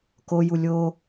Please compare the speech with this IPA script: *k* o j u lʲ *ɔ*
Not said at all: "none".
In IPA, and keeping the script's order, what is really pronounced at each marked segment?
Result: k, o

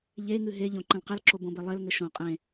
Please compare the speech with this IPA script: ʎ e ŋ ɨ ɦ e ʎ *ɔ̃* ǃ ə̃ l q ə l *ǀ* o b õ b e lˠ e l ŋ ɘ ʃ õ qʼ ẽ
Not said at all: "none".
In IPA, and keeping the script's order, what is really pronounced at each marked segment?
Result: õ, ǁ

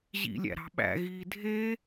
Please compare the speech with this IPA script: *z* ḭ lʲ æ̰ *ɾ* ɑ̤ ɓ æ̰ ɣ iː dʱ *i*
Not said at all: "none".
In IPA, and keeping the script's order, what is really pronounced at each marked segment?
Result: ʑ, ɾ, e

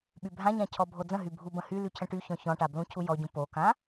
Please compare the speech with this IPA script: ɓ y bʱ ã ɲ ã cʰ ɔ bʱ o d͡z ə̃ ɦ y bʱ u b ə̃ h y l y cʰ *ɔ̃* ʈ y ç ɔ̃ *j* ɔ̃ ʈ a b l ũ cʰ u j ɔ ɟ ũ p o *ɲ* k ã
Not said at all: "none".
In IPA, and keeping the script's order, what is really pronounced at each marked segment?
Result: ə̃, ç, none

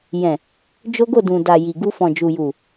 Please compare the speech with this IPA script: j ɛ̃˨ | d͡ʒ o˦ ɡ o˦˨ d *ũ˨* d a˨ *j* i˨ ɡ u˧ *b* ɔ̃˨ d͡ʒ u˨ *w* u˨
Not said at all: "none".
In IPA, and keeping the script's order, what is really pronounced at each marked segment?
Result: ũ˨, j, f, j

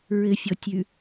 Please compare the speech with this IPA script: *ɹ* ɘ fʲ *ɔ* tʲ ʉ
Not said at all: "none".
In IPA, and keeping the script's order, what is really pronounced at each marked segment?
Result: ɹ, ɔ

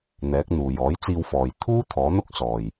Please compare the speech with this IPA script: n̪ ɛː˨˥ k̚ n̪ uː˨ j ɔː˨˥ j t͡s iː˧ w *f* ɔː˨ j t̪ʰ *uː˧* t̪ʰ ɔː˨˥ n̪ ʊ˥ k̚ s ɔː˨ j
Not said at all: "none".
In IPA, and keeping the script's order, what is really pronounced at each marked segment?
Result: f, uː˥

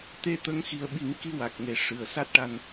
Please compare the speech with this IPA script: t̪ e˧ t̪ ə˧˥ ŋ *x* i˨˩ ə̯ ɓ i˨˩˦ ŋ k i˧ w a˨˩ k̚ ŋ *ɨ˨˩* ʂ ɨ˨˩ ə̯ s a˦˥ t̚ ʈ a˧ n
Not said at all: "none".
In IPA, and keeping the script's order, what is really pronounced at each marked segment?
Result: x, e˨˩

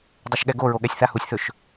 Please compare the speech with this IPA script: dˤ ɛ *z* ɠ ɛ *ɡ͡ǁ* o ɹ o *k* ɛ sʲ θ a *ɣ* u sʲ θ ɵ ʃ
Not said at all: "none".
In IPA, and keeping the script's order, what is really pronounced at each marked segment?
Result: ʃ, ɡ, ɠ, h

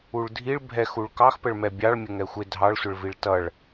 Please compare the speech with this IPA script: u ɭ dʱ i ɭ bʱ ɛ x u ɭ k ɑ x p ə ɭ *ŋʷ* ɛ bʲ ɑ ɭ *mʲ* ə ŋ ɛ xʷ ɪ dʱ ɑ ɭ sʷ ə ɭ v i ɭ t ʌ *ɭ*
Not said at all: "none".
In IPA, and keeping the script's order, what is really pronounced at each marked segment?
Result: m, mʲ, ɭ

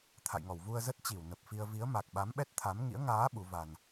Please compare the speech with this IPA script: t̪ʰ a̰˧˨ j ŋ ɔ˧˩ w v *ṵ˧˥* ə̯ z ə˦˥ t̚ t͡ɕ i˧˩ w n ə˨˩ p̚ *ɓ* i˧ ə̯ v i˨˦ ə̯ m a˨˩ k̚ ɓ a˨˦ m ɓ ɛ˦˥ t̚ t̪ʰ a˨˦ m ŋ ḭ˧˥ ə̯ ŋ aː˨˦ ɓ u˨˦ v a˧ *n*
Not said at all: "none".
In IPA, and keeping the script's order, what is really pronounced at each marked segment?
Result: u˧, f, n

